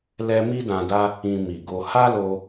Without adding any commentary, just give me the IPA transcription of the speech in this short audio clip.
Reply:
lɛ˧ mi˦dã˧da˦ | ĩ˧mi˨ɡo˧ ha˦lo˧

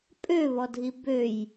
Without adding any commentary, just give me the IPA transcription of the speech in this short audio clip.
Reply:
pʼøβɔdʱi bøj

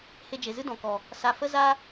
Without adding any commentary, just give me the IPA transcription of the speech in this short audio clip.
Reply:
he˧d͡ʒe˨zɨ˦ dɔ̃˨kɔ˨ | sa˧ fə˦za˦

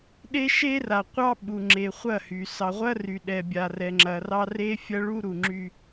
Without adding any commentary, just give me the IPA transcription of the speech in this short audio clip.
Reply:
ɗe˦ ʃe˦ra˨ qʷɑ˦ɓu˨ ŋ͡ǁe˨χʷɐ˦˨hy˨ sɑ˨ʁʷɐ˦ry˨ ɗɛ˨bʲa˨rɛ˨ŋ͡ǁɐ˨ rɑ˦re˦fʲɐ˦ ɭu˦ɾu˨ŋ͡ǁy˦

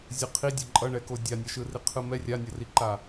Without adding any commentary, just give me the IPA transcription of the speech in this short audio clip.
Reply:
zʲɯqʰidʲo ǃʼʌɳɛko dʲanʲʌʃɯri qʰɯmɛ rʲanʲʌriǃa

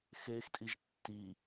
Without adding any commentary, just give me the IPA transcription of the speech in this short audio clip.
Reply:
xextʼiʒ tːi

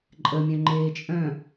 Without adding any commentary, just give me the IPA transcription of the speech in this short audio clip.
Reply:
ǃʼəmʲœ̃ ŋ͡ǃeːt͡ʃʼœ̃

